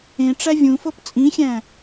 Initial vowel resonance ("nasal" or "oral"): nasal